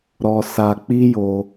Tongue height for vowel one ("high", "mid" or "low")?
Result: mid